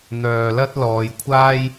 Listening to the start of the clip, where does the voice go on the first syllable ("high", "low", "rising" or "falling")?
low